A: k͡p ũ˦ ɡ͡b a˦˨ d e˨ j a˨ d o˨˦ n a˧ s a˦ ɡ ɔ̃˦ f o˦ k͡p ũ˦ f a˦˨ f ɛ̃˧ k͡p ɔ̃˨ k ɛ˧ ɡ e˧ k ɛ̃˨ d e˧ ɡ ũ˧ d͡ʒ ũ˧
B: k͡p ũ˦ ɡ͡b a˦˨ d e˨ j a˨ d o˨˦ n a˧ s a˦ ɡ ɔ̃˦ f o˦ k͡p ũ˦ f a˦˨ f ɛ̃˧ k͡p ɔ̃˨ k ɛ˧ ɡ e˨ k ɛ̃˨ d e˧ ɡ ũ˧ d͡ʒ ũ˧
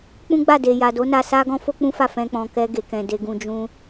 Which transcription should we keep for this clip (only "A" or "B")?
B